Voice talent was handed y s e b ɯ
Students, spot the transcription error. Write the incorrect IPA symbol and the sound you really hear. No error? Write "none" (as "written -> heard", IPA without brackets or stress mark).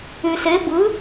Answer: none